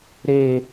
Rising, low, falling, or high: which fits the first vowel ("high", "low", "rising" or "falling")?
high